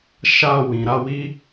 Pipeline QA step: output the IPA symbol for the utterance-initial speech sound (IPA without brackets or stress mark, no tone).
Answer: ʃ